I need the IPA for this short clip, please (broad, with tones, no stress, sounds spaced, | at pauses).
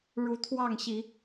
ɻ u˨˦ t̪ʰ w ɑ˥˨ ŋ ɕ i˨˦